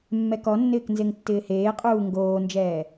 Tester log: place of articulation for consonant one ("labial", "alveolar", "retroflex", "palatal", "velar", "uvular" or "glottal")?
labial